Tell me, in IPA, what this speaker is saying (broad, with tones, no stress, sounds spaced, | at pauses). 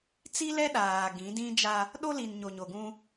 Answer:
t͡s i˦ l ɛ˦ ɗ aː˨ ɡ ĩ˨˦ d ĩ˦ d͡ʒ a˦ | ɗ o˦ l i˨ n ɲ o˨ ɲ o˨ ɡ ũ˦